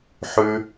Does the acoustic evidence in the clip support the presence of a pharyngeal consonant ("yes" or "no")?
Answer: yes